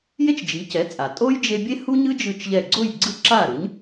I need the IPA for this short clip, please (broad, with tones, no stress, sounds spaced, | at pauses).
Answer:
j e˥ t͡ʃ d͡ʒ i˩˥ c ɛ˩˥ t͡sʼ a˩ tʼ o˥ j d͡ʒ e˧ bʲ e˥ h u˥ ɲ ɯ˥ d͡ʒ ɯ˥˩ t͡ʃ ʎ ɛ˥˩ ɡ͡ǀ o˥˩ j ɡ͡ǀ ɯ˥˩ ǁ a˥˩ ɾ ɯ˩˥ ɲ